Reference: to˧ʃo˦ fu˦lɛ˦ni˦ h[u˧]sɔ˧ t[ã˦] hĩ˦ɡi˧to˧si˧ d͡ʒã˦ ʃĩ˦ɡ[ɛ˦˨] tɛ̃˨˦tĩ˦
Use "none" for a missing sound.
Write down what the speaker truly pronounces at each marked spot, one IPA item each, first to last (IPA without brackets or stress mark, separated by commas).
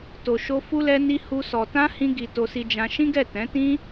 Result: u˦, ã˦, ɛ˦˨